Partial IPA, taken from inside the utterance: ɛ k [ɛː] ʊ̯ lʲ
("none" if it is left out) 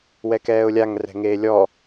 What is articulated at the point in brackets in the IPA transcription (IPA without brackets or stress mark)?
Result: ɛː